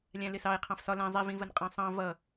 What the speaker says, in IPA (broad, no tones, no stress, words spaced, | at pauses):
lʲæ̃lɪsɑe̯ qʰɑ̃fsɒ læ̃ zˤi vĩvənqʼɑ̃sˤɑ̃ vʌ